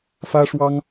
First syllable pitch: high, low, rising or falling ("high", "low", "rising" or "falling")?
high